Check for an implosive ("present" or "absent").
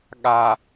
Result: present